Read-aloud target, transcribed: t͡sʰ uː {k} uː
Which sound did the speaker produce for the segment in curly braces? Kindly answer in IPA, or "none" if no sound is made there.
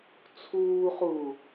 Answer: χ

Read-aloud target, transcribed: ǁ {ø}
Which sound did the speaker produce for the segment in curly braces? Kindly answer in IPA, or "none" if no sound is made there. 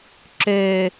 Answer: ø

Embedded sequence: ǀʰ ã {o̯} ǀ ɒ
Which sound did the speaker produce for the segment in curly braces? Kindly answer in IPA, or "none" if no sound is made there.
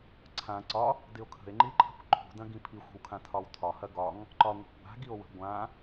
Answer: none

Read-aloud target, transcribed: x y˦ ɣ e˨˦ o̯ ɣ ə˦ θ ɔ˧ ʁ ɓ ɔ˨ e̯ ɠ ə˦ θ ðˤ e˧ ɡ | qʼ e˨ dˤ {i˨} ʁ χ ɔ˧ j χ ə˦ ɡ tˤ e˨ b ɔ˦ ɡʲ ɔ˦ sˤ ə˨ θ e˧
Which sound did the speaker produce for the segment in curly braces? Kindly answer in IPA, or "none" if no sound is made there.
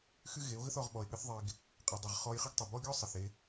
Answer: i˨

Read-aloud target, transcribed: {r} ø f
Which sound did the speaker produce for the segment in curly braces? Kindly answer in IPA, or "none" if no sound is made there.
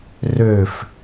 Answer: r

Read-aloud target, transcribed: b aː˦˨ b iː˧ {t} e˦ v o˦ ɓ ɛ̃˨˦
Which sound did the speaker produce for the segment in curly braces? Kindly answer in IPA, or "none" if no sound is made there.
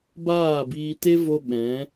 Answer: t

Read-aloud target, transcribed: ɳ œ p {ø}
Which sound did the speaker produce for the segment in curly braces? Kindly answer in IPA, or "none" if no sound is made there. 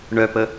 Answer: ə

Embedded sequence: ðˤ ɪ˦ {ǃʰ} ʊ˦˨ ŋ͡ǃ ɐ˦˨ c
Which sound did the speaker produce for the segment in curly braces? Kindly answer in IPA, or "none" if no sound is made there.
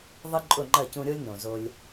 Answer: ǃʼ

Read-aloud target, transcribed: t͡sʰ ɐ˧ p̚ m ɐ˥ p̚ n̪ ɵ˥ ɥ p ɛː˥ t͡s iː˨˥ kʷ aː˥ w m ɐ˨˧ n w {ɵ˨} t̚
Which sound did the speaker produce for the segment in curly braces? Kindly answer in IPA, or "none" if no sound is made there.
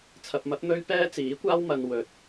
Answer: ɵ˨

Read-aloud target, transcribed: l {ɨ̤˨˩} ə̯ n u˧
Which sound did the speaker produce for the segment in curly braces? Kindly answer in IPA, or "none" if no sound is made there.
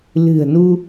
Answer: ɨ̤˨˩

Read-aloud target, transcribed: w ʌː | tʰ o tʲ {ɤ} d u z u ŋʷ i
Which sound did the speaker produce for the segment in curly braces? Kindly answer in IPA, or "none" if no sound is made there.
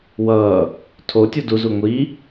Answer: o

